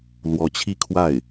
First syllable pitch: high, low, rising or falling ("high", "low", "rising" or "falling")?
rising